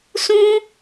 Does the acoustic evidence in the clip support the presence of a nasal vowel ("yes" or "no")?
yes